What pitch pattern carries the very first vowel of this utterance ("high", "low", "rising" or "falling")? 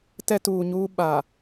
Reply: high